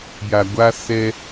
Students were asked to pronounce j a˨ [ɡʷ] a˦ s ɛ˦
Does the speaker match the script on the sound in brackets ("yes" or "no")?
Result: yes